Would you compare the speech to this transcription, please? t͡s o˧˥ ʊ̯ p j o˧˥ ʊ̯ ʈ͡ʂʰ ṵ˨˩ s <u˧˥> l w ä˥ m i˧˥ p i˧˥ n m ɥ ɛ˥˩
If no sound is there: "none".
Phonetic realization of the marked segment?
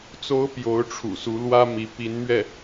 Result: u˧˥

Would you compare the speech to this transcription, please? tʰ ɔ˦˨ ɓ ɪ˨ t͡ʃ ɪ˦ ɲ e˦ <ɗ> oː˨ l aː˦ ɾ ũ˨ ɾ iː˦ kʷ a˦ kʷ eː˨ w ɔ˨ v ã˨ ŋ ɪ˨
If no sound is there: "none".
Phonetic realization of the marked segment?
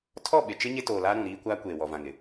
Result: t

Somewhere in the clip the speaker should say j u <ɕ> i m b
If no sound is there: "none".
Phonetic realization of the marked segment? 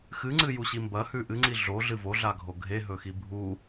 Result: ɕ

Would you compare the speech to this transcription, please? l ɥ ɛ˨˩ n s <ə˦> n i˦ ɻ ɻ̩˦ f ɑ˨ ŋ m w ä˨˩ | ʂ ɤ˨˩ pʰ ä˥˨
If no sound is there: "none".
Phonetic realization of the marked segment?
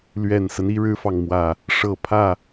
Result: ə˦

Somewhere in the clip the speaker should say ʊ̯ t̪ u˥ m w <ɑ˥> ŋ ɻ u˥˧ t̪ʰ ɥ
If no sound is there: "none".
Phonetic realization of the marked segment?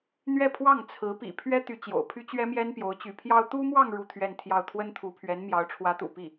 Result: ɑ˥˧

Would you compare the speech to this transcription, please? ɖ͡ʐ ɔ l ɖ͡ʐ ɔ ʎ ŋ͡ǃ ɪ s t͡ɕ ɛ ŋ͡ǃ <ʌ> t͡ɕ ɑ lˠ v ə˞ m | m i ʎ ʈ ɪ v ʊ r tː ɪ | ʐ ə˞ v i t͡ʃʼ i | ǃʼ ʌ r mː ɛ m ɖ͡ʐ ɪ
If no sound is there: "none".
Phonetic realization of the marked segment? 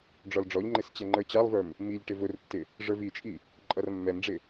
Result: ə˞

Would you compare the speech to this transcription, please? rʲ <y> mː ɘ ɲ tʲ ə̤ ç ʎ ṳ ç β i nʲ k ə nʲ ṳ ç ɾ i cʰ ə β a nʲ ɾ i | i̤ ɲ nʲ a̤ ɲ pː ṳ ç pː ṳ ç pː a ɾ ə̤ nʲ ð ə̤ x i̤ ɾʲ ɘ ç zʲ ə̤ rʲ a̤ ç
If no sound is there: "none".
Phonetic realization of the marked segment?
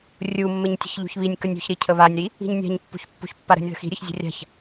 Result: u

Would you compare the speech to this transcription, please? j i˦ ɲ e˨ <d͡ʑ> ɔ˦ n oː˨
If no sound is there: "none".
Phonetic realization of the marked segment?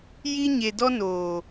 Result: d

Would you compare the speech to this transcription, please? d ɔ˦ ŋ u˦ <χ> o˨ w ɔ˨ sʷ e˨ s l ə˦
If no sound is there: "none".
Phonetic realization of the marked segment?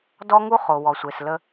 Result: χ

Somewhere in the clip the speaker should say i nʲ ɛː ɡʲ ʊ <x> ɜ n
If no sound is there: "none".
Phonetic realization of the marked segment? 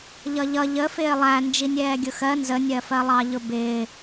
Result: x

